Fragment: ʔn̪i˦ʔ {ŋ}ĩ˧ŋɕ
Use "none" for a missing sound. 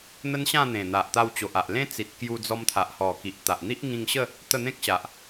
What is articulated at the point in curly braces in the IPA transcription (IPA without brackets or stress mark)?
ŋ